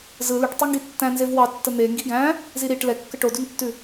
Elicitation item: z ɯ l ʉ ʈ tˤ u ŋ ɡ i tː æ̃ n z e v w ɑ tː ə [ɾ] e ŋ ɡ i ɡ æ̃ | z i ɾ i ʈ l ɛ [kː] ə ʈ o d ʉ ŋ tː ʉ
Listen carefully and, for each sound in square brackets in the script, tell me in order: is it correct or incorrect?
incorrect: n̪, correct

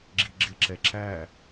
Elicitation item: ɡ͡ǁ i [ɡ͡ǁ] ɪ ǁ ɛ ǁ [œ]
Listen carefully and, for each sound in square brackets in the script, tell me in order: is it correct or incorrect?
correct, incorrect: æ

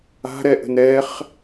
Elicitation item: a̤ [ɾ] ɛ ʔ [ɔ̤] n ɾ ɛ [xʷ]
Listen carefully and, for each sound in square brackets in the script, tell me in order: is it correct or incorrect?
correct, incorrect: ə̤, incorrect: χ

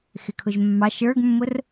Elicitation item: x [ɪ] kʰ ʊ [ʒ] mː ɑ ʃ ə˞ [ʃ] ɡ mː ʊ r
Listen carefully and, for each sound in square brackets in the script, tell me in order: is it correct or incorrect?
correct, correct, incorrect: none

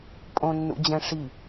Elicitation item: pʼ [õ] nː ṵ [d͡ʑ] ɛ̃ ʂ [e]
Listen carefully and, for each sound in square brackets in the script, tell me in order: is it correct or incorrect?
correct, correct, incorrect: i

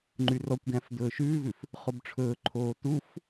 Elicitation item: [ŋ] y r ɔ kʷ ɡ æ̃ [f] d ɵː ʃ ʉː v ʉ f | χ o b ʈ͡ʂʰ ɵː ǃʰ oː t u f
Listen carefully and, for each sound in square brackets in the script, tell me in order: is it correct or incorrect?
incorrect: ŋ͡ǃ, correct

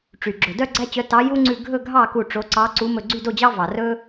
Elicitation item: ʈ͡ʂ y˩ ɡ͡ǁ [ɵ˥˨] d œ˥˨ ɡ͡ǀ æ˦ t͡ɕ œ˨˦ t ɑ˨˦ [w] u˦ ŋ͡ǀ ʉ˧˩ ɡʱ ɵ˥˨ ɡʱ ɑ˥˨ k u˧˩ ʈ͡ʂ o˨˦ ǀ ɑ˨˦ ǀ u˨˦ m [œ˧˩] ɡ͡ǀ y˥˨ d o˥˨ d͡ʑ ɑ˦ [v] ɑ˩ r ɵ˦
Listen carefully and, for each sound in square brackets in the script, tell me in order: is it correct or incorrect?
incorrect: ɵ˩, incorrect: j, incorrect: ɵ˧˩, correct

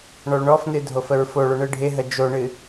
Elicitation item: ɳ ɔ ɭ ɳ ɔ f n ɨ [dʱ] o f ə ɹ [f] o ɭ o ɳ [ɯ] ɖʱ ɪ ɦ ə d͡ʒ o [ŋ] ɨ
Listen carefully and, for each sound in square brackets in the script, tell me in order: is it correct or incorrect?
correct, correct, correct, incorrect: ɳ

